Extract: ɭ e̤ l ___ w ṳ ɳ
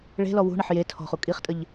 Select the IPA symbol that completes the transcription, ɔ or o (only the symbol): ɔ